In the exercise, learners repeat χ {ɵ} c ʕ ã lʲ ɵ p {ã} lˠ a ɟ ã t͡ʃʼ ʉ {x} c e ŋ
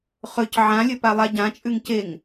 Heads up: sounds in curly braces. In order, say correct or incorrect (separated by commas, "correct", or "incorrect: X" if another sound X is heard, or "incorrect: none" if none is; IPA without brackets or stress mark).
correct, incorrect: a, incorrect: ŋ